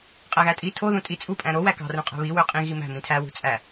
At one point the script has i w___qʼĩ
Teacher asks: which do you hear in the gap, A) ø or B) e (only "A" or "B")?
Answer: A